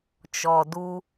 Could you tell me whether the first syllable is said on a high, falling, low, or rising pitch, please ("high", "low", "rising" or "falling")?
low